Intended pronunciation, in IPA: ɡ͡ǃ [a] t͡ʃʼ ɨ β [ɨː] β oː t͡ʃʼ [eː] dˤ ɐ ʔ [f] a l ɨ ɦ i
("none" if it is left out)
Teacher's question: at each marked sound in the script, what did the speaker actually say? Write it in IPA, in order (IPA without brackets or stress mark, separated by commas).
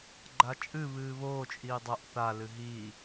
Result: a, ɨː, iː, θ